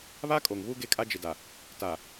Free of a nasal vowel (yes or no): yes